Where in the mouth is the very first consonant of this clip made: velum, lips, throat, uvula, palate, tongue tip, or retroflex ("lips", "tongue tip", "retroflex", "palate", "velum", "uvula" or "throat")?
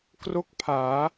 velum